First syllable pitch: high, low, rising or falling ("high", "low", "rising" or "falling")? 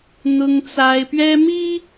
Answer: high